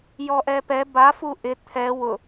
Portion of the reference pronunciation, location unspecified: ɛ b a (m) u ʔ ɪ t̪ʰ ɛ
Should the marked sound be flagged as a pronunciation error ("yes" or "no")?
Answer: yes